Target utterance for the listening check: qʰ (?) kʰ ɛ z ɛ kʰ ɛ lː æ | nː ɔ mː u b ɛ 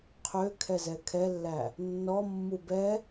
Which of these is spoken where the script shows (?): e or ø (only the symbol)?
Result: ø